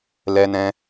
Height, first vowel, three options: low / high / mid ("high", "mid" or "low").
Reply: mid